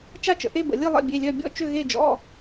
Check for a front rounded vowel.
present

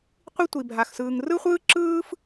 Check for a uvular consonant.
present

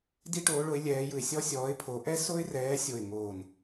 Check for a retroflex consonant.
present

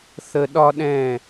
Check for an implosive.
present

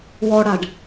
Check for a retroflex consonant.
present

